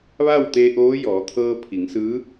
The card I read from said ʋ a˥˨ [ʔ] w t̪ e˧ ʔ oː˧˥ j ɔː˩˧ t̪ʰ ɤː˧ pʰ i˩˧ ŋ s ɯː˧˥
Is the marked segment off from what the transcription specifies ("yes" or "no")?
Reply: yes